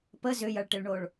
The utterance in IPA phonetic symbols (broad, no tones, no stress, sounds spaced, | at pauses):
p ə z ʏ j ɐ ɭ ʈ ɪ ɭ ɳ o ɭ